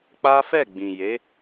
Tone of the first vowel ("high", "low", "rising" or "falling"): high